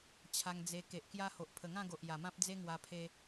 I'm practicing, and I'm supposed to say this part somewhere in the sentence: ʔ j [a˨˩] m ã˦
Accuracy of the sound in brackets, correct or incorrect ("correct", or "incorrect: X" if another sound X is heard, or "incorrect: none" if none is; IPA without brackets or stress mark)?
correct